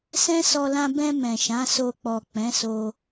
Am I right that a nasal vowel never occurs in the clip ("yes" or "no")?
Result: no